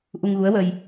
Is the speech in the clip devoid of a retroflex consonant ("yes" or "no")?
yes